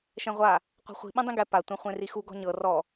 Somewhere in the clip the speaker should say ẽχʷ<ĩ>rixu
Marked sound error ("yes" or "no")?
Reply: yes